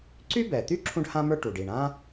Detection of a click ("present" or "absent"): present